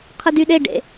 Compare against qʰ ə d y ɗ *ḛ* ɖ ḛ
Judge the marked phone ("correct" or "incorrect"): incorrect